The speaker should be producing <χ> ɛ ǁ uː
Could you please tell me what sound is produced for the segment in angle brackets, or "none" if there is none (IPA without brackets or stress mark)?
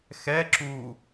x